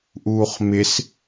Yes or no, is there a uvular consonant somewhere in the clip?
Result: yes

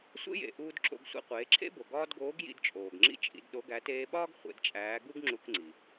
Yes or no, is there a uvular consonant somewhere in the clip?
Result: yes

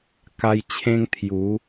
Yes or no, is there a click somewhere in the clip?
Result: no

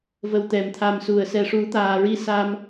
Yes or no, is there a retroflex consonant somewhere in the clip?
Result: yes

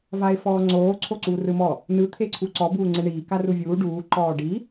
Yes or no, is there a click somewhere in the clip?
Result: yes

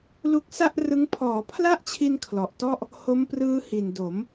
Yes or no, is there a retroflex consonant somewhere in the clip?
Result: no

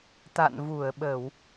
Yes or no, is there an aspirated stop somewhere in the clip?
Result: no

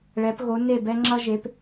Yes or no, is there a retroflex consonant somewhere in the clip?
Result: yes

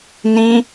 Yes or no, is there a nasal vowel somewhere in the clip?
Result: yes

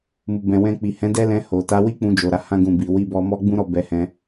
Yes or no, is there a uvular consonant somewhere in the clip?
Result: no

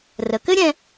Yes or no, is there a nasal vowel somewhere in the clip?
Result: yes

